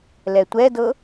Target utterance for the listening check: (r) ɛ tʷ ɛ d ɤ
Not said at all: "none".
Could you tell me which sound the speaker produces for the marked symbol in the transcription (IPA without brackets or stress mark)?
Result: l